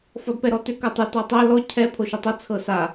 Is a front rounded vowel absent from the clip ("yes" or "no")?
no